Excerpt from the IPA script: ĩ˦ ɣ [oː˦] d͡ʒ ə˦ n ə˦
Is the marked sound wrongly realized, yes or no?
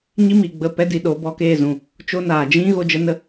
yes